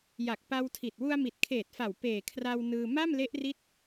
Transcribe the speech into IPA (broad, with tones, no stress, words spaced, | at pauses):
ja˨˩k̚pa˧wtʰi˨˩t̚ wu˧a̯mi˨˩t̚kʰeː˨˩t̚fa˨˩w peː˨˩kʰra˧w nɯː˧ ma˥˩mle˦˥ʔri˦˥t̚